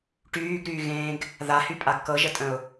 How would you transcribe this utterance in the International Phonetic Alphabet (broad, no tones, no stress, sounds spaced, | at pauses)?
ʈ yː ɡ ɾ yː ɣ ẽː ɡ | ð a h y pʼ a ɡ k ɤ ʒ ə tʼ ə̃ ʊ̯